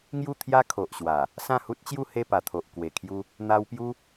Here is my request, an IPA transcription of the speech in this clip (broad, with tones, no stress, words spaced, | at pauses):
ŋju˥˧t̪ʰja˦ kʰo˨ʔɕwa˨˩ | sã˥˧hu˦t̚t͡ɕju˥˧ he˥˧pa˨˩ t̪ʰo˨ʔ kwe˨˩kʰju˧ | n̪a˧wpju˦